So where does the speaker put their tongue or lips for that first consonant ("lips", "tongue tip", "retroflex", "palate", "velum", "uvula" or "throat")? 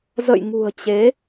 tongue tip